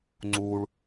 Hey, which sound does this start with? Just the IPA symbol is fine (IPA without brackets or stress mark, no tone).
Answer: ŋ͡ǀ